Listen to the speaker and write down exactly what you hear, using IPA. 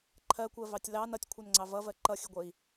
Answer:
ǃʰ ɜ kʷ ɜ v ɑ tʲ l ɑ n ʌ tʲ kʷʰ ʌ n ŋ͡ǀ ɑ v ʌ v ɜ ǃ ʌ xʲ ə ɡʷ ə i̯

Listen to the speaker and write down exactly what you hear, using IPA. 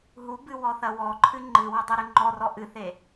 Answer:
ɦ u b ɨ w ɔ θ ɐ w ɔ ǃʰ ɨ ŋ͡ǃ ɨ w ɐ dˤ ɨ ɾ ɨ ŋ͡ǃ ɔ r ɔ ʔ ɨ θ e

